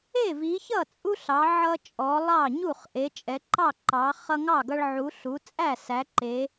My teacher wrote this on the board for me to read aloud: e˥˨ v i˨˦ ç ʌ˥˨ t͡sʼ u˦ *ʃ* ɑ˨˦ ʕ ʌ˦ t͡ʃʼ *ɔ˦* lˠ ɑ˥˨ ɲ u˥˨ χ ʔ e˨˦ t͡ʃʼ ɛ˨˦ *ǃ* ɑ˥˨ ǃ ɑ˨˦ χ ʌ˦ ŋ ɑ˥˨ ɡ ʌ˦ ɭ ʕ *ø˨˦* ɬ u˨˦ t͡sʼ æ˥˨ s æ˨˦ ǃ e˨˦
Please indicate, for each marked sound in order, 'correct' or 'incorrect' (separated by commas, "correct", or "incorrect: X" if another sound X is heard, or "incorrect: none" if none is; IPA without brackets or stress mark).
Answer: incorrect: ɬ, incorrect: ɔ˨˦, correct, incorrect: u˨˦